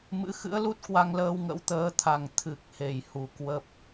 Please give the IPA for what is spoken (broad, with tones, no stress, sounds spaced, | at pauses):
m ɨ̰˧˥ x ɨ̰˧˥ ə̯ l u˦˥ t̚ k w a˧ ŋ l əː˧ w ŋ ə̰˧˥ w t̪ əː˨˦ t̪ʰ a˨˩ ŋ t̪ʰ ɨ˨˩ k̚ h e˨˩ j h u˧˩ k w ə˦˥ p̚